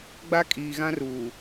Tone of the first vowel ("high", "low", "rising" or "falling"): high